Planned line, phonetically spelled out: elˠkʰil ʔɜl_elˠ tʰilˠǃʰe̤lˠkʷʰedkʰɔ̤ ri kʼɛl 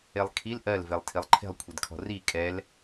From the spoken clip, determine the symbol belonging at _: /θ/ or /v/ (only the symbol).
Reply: v